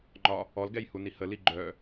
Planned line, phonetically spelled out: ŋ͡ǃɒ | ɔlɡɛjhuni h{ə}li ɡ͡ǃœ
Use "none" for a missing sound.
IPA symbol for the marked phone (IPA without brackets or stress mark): ə